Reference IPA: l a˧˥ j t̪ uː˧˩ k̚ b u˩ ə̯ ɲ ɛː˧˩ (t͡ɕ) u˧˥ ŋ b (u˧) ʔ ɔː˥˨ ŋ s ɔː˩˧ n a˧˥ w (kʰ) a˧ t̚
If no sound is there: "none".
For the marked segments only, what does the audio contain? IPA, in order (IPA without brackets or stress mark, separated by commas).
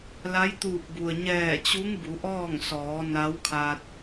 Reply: t͡ɕ, u˩˧, kʰ